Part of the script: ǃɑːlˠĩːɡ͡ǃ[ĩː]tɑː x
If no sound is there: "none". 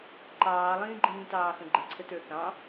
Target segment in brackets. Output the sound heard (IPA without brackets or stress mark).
ĩː